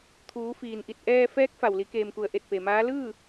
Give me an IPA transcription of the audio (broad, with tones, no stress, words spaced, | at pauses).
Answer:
t̪ʰuː˩˧fiː˩nʔi˧˩t̚ ʔɛː˧ fɛː˧˥k̚fa˩w li˩˧keː˩mku˩ə̯ ʔe˧˩t̚pe˩maː˧˥ lɯː˥˨